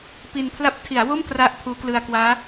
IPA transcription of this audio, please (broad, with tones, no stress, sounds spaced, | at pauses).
p i˧ n pʰ l a˦˥ p̚ tʰ i˩˦ a̯ w o˥˩ m k r a˥˩ ʔ pʰ uː˦˥ k l ɯ˧ a̯ k w aː˦˥